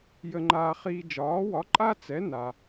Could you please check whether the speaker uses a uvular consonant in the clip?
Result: yes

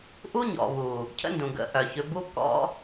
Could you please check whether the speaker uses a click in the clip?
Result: no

